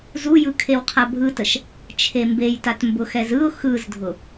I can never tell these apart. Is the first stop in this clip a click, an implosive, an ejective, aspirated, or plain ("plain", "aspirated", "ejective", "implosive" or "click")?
aspirated